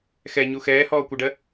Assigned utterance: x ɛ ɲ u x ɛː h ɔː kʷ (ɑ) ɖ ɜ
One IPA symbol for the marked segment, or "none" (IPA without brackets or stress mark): ʌ